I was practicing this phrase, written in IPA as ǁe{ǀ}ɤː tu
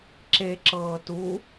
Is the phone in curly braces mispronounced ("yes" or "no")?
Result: yes